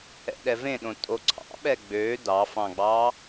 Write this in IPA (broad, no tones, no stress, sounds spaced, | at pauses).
ɛ̰ ɗ ɛ v ẽ ɗ õ tʼ o ǀʰ ɑ̰ ɓ ɛ ɡ͡b ø d ɑ f ɑ̃ ɡ͡b ɑ